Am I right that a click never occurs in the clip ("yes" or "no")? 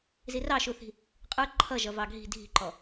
no